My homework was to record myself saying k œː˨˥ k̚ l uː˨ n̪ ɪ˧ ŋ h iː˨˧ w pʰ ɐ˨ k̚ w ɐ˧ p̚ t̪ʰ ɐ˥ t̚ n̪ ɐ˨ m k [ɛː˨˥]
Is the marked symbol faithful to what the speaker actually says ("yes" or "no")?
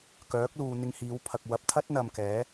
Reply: yes